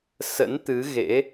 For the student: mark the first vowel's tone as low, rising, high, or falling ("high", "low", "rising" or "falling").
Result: rising